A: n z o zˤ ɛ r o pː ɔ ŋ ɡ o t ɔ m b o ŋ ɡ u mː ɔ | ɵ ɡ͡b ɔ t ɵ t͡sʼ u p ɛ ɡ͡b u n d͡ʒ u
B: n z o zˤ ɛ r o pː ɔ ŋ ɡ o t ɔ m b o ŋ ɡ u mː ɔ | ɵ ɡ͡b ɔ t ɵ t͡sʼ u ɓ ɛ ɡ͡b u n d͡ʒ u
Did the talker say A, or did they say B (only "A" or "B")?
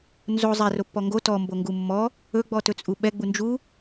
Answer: B